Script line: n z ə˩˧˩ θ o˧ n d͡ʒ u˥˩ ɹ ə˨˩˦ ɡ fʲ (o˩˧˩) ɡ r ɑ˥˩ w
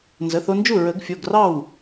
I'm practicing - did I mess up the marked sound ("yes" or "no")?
no